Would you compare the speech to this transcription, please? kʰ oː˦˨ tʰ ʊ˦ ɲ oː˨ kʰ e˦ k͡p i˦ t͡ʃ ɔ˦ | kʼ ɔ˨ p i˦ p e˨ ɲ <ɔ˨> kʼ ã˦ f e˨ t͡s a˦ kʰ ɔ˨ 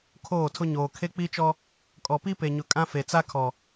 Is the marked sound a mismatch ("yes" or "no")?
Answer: yes